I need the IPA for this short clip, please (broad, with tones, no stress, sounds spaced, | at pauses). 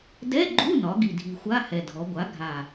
d ɛ˧˥˧ ɡ͡ǃ u˧˥˧ n ɒ˩˧ ɡ i˨˩ dʱ i˨˩ xʷ a˧˥˧ h ɛ˨˩ dʱ ɔ˩˧ ɡʷ a˩˥ ɡʱ a˨˩